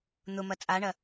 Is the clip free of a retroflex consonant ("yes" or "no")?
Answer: no